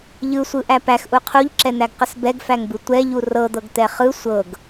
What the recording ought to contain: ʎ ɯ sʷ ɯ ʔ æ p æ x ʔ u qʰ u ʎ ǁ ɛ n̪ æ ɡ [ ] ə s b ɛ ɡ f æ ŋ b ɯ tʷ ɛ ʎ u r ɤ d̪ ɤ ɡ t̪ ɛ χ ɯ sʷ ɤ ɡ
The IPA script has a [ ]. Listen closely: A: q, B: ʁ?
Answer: A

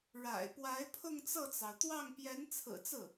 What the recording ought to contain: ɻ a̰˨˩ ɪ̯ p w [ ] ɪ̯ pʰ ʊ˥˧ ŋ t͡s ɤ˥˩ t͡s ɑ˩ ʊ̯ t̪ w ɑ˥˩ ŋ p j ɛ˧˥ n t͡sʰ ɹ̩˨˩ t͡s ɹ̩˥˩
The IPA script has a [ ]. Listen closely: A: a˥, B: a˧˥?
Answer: B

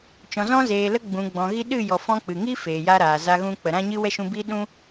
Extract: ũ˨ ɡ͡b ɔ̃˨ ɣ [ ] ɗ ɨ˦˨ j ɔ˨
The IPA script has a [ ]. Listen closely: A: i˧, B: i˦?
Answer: A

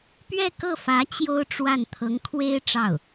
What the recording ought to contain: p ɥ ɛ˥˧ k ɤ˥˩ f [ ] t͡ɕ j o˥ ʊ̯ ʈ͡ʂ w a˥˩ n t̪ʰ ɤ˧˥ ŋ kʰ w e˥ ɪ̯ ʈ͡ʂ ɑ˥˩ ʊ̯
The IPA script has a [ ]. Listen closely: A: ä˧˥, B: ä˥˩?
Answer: A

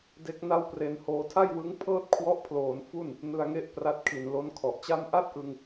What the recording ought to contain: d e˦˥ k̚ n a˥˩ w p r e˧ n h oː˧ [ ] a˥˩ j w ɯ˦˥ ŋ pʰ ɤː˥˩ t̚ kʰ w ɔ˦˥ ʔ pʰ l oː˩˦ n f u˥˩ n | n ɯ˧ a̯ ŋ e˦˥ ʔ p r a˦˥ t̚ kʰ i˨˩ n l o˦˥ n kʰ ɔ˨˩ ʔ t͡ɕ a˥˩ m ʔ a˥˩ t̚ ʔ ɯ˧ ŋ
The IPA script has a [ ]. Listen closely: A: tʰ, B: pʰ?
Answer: A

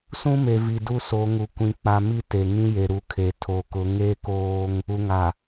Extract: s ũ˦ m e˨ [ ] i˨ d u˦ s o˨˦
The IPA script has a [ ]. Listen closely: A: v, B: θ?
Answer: A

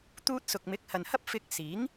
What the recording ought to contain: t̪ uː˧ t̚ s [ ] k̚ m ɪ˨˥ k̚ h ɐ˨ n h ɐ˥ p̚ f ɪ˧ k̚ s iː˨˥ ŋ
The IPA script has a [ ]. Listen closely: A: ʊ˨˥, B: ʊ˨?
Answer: B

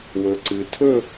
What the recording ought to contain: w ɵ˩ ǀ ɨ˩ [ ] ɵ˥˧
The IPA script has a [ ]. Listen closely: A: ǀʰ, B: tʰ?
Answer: B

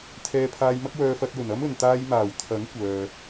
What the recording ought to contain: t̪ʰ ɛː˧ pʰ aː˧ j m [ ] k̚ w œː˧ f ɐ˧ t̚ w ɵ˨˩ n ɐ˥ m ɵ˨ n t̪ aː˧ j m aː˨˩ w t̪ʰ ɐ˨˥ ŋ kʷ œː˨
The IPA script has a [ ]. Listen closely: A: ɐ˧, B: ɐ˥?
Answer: B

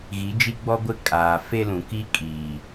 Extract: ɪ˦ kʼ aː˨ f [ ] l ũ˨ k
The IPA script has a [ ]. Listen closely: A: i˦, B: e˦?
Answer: B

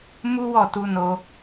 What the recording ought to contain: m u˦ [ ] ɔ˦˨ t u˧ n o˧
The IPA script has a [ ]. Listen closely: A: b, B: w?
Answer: B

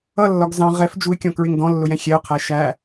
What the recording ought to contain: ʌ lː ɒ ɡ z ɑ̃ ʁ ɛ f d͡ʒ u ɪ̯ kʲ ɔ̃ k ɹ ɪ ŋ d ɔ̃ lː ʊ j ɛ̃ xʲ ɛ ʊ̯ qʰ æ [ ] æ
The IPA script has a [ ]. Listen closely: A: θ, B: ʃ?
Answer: B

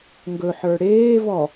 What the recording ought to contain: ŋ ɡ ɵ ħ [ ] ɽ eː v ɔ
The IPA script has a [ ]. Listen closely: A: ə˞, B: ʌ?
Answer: A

